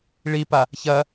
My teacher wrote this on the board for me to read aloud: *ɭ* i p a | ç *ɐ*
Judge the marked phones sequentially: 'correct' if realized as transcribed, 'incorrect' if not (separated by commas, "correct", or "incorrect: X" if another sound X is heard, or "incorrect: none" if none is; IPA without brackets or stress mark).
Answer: correct, correct